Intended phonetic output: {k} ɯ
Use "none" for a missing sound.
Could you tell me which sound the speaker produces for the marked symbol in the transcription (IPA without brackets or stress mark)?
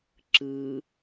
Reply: ǁ